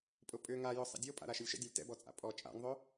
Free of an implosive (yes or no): yes